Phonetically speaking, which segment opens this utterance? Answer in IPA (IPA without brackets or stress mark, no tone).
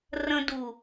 r